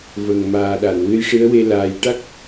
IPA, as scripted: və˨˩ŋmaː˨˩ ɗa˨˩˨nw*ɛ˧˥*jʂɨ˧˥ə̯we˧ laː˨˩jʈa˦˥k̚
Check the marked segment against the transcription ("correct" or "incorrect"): incorrect